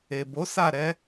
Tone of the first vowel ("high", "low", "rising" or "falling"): low